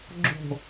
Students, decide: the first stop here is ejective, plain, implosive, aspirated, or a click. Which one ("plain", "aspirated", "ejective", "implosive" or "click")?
click